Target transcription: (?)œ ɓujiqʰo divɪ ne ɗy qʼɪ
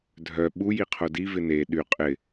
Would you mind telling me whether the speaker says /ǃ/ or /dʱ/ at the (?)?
dʱ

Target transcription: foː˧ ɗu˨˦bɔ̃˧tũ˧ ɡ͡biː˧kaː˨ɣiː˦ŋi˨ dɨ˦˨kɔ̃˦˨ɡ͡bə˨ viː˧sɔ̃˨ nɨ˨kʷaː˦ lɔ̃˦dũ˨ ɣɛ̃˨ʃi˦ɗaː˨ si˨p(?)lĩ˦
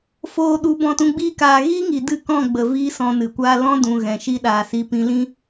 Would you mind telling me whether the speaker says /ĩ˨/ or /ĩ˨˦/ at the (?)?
ĩ˨˦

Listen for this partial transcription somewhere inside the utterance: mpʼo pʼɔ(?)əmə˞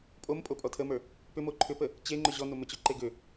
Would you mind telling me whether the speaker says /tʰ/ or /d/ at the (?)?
tʰ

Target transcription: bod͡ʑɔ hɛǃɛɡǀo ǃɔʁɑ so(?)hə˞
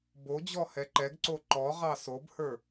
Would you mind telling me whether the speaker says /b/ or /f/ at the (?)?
b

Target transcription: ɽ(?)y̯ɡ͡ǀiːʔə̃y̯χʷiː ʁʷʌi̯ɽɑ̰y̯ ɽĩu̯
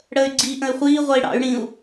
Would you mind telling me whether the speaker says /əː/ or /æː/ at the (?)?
əː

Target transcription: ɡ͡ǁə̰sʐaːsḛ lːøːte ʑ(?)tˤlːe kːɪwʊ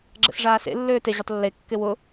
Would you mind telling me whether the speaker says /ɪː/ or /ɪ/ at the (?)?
ɪ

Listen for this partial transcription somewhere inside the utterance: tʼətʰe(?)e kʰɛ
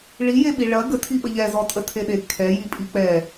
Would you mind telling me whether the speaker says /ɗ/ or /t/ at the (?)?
ɗ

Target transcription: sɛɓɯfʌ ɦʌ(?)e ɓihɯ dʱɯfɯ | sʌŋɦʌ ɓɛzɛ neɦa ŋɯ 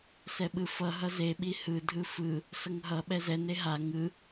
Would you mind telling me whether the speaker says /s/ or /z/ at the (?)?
z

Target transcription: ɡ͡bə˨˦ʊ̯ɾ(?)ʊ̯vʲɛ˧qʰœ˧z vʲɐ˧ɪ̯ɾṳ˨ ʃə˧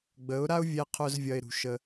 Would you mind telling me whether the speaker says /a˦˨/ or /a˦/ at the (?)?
a˦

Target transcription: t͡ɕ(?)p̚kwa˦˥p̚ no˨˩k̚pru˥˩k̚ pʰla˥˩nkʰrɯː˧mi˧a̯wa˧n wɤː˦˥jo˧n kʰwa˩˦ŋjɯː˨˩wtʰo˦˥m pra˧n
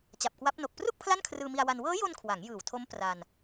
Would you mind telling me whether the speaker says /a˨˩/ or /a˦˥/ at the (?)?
a˨˩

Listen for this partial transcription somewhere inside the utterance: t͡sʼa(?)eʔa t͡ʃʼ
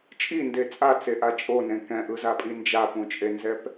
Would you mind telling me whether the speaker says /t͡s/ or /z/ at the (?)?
t͡s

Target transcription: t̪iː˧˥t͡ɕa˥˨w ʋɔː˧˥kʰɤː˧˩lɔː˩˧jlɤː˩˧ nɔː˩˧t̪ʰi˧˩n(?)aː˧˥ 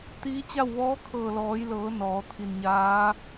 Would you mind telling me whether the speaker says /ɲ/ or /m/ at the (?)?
ɲ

